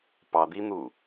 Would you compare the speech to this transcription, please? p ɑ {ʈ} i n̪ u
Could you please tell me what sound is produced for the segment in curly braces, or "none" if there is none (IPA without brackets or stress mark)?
d̪